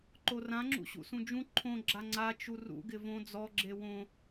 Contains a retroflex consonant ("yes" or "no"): no